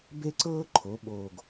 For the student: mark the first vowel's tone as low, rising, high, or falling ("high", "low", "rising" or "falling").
high